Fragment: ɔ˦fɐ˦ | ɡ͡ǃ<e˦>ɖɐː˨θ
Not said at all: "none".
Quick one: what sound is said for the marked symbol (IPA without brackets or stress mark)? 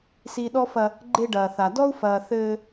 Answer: e˦